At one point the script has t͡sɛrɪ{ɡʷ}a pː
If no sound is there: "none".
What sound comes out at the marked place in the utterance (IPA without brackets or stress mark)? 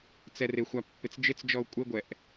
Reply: xʷ